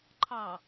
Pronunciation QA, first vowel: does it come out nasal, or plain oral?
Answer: oral